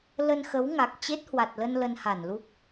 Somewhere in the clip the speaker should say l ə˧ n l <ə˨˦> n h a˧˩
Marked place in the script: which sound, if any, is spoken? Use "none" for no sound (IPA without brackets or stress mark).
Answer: ə˧